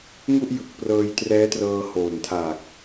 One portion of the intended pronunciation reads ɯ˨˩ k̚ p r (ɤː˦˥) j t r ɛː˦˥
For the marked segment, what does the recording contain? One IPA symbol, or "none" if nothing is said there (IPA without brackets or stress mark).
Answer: ɤː˧